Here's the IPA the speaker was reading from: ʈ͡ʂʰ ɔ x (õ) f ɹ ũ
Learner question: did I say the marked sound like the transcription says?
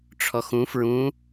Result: no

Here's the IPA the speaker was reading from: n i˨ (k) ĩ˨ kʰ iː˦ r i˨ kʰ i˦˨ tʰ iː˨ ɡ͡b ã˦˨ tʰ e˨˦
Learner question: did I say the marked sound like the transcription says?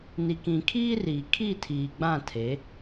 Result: yes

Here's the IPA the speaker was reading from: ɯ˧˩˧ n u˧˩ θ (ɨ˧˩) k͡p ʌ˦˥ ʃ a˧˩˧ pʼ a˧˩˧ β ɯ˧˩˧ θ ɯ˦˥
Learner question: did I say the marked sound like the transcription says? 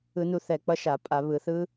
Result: no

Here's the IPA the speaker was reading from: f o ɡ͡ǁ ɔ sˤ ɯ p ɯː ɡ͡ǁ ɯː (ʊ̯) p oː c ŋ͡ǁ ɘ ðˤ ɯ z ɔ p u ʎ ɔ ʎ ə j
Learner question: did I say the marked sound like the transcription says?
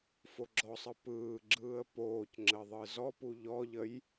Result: no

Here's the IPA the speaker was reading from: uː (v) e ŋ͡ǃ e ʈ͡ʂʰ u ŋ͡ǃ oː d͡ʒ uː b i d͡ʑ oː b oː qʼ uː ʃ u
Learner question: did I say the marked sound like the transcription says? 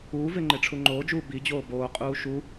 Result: yes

